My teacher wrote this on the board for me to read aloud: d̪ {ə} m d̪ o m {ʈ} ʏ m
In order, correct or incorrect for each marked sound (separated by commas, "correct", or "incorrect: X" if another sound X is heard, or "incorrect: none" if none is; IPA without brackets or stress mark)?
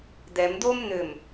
incorrect: ɛ, incorrect: n̪